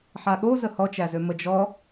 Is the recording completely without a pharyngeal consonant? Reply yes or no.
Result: no